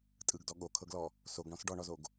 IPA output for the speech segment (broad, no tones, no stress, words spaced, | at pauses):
tʼɯɡdɔ ɠokʰɤɡlɔ | soɡɳɔ̃s ɖɔɳɔzoɡ